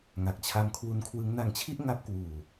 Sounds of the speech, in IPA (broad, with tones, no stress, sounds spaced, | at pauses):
ŋ a˨˩ k̚ t͡ɕʰ a˦˥ m kʰ w u˦˥ n kʰ w ɯ˦˥ ŋ n a˧ ŋ t͡ɕʰ i˥˩ ʔ ŋ a˦˥ p̚ k w uː˨˩